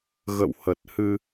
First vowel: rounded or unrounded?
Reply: unrounded